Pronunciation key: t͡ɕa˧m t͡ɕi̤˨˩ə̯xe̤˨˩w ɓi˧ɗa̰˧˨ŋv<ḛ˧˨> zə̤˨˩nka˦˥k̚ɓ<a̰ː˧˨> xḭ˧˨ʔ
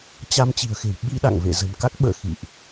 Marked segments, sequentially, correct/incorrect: correct, incorrect: ə̰ː˧˨

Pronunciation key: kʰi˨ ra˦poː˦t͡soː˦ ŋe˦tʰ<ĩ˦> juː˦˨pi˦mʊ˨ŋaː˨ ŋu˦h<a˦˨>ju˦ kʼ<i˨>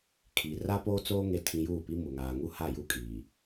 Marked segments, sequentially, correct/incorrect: correct, correct, incorrect: iː˨

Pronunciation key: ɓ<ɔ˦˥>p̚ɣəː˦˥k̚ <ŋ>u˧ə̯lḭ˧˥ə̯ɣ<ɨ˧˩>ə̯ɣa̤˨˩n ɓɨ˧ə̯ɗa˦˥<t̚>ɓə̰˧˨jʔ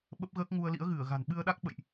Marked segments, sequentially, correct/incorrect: incorrect: ə˦˥, correct, correct, incorrect: k̚

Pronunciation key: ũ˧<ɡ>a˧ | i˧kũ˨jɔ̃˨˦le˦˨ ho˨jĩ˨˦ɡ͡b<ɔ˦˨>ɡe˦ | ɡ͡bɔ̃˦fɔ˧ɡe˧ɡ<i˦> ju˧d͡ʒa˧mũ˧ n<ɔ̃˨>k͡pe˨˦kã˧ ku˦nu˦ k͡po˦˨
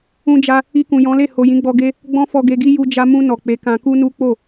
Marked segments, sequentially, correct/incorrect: incorrect: d͡ʒ, incorrect: ɔ˧, correct, incorrect: ɔ˨

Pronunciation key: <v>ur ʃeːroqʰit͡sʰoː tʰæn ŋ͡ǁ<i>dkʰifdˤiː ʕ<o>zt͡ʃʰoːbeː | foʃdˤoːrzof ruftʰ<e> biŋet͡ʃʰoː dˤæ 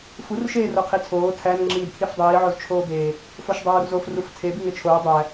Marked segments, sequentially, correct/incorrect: incorrect: f, incorrect: iː, correct, correct

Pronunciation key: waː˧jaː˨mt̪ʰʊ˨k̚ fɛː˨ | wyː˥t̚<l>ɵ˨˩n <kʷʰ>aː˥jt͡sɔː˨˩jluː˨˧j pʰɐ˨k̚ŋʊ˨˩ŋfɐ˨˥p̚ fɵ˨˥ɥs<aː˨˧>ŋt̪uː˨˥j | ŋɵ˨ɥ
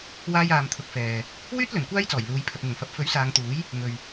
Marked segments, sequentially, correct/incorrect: correct, incorrect: kʷ, correct

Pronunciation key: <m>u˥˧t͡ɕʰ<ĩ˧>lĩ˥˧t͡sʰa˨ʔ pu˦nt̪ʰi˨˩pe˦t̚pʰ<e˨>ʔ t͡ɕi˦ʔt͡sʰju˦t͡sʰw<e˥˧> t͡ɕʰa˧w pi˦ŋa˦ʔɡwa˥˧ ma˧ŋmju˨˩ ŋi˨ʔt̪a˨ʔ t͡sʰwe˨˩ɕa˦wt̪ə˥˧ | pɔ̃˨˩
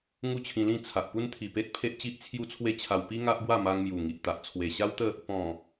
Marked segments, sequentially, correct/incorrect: incorrect: ŋ, correct, incorrect: e˦, incorrect: e˦

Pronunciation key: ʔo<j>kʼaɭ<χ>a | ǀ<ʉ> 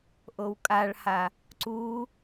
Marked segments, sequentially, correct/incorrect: incorrect: w, incorrect: h, incorrect: u

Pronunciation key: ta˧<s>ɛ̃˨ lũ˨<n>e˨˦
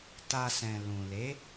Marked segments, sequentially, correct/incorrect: correct, incorrect: l

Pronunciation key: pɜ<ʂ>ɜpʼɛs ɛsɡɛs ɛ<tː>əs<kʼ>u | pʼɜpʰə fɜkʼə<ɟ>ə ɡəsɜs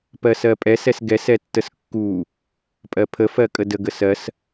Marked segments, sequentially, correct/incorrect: incorrect: s, correct, incorrect: kː, incorrect: d

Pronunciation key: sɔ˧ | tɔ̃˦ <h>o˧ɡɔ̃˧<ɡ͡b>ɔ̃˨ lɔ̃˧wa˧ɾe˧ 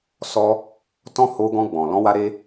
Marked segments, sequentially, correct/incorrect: correct, correct

